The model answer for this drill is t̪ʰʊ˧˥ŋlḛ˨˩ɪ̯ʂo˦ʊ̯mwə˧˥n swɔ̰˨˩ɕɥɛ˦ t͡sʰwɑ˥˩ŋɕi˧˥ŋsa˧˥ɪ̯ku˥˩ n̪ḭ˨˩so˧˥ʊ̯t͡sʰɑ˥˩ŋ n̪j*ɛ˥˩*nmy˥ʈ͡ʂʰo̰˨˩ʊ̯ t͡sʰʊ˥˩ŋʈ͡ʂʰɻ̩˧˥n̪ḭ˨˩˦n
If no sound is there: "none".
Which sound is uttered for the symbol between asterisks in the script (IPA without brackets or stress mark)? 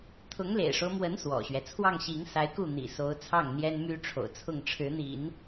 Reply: ɛ˥